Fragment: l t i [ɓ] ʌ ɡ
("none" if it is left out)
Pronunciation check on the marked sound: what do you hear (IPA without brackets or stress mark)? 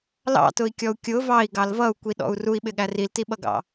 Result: ɓ